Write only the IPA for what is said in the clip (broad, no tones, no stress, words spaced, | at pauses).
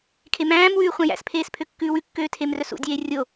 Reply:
kʰemæ̃ːmwʉː χʷæ̃jæ̰spʰeːs pʰøkːʉːwʉkːøː tʰemrœsṵdʲeː rʲo